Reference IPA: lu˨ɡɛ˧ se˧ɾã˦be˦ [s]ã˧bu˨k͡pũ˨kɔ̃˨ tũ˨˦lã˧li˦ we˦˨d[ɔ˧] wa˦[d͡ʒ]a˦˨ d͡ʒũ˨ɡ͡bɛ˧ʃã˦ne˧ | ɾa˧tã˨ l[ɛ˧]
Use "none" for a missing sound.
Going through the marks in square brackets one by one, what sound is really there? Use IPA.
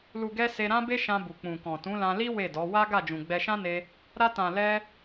ʃ, ɔ˨˦, ɡ, ɛ˧

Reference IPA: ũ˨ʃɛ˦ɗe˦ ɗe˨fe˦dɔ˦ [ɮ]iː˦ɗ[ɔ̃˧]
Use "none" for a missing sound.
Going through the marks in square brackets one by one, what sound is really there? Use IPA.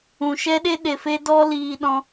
l, ɔ̃˦

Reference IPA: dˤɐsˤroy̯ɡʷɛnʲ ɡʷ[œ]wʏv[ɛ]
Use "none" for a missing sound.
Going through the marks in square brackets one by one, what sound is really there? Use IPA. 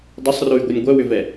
œ, ɛ

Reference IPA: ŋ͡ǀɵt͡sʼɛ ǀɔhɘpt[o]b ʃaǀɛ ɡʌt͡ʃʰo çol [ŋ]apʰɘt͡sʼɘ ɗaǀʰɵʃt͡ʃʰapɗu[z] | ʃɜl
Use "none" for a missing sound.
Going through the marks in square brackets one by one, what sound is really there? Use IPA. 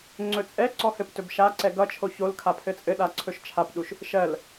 ɵ, kʰ, ʃ

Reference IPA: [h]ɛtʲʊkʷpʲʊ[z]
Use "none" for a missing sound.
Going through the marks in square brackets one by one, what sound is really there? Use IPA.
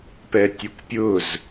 p, z

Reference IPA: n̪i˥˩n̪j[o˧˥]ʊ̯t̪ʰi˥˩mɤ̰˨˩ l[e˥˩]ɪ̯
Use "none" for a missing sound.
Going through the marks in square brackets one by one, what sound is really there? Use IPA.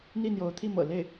o˧˥, e˥˩

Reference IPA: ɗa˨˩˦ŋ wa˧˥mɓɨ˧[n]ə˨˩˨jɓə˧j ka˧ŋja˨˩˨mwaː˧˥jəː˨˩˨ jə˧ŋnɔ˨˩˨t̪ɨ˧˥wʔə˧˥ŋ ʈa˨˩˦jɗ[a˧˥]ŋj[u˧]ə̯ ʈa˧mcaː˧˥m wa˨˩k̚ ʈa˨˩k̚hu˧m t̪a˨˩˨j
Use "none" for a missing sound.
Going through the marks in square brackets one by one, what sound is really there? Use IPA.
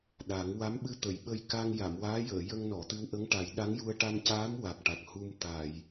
t̪, a˧˥, u˧

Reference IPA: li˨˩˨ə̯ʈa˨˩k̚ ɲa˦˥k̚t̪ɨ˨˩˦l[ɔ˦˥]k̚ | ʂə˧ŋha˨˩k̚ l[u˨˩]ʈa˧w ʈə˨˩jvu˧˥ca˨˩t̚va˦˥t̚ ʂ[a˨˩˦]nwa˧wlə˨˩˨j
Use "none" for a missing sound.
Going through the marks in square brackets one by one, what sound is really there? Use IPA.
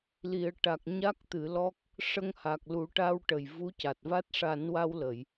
ɔ˦˥, u˨˩˦, a˨˩˦

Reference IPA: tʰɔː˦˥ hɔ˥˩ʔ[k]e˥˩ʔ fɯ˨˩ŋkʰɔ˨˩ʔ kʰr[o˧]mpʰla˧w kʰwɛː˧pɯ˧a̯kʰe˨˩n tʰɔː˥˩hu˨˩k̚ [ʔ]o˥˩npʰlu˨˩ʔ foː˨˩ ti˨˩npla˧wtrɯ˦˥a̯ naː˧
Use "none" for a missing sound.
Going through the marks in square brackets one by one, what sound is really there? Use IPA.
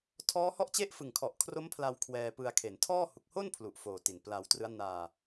t͡ɕ, o˦˥, h

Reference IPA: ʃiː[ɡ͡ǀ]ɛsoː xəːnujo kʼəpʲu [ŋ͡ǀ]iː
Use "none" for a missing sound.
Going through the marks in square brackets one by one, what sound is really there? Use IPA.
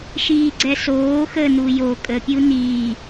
ɡ͡ǀ, n

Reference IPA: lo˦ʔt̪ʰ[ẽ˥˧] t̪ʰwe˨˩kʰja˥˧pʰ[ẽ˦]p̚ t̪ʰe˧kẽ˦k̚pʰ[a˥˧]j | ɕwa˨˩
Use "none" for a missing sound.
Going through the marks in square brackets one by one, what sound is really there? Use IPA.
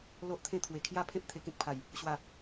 ẽ˥˧, ẽ˦, a˨˩

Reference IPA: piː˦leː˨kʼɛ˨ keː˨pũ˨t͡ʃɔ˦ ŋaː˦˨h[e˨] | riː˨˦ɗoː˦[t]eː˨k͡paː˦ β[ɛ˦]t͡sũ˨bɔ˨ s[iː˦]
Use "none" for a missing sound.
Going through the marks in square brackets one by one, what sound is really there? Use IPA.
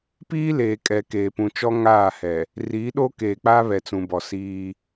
ɛ˨, k, ɛ˨, iː˦

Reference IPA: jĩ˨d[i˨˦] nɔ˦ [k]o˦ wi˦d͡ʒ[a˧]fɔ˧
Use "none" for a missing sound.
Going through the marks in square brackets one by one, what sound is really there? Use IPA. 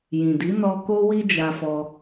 i˨˦, k, a˧

